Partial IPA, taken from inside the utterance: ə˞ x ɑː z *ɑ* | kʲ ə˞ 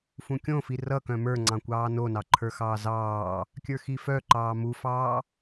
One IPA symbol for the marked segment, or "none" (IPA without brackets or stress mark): ɑː